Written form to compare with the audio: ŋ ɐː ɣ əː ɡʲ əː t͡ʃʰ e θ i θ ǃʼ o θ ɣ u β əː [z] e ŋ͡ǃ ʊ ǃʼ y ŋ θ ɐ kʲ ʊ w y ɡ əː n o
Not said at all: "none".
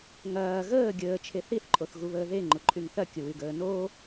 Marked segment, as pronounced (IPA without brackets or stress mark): ð